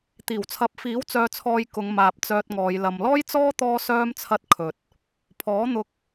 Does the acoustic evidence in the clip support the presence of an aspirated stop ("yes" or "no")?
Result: yes